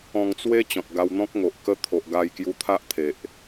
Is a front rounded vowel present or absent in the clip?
absent